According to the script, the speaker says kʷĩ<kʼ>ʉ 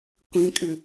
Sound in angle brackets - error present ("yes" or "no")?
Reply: no